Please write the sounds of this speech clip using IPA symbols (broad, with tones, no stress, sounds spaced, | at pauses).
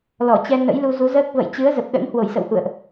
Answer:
l ɔ˧˩ t͡ɕ ɛ˧ n ə̰˧˥ j l u˧ z u˨˦ z əː˦˥ k̚ v ə̰˧˨ j t͡ɕ ɨ˨˦ ə̯ z ə˨˩ p̚ ɗ ə̰˧˥ n h w o˧˩ j s ə̰˧˨ w h ṵ˧˨ ə̯ ʔ